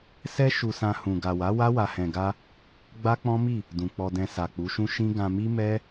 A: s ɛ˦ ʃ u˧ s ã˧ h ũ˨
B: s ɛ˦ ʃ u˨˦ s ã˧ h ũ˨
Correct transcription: A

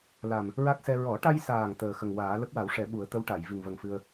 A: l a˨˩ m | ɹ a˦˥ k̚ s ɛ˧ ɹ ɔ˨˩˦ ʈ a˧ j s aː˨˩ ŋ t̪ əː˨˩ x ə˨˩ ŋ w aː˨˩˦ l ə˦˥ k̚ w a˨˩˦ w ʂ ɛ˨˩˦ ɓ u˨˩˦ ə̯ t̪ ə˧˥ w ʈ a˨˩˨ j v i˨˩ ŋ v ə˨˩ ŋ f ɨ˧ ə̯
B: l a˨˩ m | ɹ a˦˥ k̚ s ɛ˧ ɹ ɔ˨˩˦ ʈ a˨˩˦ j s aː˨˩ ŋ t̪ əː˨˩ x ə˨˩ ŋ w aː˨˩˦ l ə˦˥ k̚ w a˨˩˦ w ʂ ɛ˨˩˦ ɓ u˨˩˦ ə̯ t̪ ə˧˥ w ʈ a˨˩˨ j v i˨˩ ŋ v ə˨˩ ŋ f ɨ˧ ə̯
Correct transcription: A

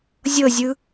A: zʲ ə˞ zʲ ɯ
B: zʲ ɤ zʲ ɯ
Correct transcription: B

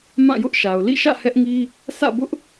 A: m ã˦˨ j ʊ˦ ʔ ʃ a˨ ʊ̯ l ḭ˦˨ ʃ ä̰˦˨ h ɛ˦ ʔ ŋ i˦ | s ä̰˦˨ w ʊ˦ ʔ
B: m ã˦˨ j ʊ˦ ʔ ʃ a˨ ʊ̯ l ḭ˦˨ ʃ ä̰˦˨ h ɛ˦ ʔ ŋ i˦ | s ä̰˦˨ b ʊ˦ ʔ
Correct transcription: B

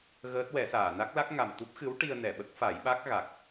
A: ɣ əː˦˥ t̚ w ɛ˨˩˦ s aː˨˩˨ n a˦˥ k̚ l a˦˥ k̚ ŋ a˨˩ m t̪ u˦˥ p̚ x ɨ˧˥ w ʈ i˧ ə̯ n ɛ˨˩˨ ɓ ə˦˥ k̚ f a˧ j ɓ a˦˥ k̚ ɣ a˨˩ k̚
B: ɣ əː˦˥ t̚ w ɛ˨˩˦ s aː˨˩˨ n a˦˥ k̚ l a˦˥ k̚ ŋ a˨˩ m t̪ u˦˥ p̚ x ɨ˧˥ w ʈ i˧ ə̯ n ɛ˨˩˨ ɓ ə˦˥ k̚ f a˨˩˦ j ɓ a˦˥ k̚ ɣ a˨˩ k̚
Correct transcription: B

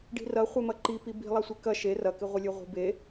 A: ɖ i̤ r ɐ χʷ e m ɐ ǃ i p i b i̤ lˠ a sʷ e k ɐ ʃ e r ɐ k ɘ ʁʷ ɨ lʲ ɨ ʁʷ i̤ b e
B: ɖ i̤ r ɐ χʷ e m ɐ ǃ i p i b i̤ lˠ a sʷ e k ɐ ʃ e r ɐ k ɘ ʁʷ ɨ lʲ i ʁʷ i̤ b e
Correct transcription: A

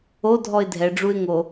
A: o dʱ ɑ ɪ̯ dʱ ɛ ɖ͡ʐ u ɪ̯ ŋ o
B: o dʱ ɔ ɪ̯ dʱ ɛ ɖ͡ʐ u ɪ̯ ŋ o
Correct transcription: B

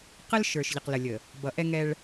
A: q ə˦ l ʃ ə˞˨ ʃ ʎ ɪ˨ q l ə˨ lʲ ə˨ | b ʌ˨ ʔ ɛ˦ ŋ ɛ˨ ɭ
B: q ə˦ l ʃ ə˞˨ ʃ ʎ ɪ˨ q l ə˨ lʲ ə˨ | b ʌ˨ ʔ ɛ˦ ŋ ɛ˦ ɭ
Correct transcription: B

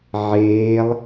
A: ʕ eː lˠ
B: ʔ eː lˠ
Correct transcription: A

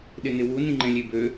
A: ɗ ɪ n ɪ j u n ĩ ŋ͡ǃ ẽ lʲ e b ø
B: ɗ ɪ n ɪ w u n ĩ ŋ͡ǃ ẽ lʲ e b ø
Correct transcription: B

